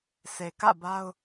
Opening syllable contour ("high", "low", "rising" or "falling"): low